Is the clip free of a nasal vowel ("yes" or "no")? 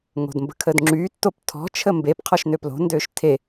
yes